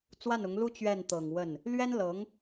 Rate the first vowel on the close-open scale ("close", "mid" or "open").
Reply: open